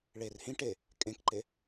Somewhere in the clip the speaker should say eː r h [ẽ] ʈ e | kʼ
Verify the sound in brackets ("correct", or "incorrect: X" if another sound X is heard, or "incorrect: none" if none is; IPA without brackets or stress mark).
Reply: incorrect: ĩ